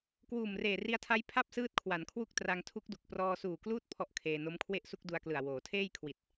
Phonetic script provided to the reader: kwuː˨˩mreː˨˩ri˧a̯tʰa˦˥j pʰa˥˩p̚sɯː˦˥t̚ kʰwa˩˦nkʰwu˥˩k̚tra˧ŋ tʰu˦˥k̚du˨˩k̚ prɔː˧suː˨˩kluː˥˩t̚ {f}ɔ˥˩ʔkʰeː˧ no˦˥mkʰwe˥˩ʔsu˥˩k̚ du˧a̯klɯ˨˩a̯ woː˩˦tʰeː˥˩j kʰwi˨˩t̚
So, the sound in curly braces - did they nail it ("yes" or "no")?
no